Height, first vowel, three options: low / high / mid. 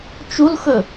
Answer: high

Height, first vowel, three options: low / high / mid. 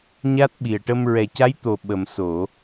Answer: low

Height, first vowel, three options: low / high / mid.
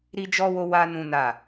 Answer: high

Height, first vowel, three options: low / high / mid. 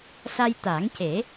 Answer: low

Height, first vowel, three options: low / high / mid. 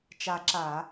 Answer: low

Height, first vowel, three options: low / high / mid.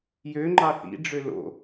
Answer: mid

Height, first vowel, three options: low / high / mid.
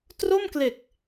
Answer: mid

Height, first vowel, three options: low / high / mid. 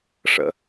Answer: mid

